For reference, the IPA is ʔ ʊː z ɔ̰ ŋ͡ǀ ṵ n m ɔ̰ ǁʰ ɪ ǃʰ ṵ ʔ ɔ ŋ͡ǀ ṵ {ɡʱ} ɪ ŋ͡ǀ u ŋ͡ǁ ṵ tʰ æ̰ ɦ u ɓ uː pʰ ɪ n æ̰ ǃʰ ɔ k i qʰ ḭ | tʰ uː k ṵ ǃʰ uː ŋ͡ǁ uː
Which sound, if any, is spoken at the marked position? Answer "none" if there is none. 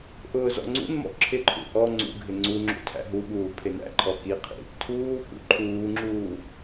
ɡʱ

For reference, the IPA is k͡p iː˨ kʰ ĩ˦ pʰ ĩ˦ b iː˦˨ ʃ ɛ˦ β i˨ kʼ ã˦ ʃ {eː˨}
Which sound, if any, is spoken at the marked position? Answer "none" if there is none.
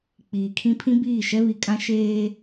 eː˦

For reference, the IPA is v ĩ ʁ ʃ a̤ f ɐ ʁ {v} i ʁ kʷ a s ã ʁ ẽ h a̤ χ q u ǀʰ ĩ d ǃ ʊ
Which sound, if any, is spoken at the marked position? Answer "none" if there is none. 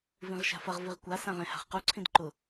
v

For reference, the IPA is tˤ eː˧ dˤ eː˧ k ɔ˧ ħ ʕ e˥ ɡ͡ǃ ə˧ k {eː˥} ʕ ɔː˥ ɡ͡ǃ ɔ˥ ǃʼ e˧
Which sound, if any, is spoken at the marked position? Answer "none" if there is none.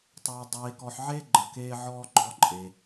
eː˥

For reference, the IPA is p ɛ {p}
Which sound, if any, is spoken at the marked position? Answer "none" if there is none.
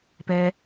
none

